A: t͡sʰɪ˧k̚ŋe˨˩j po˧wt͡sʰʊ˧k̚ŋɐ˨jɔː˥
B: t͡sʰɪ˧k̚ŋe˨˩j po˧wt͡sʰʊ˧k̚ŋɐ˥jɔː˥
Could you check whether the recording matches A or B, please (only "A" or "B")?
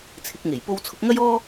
B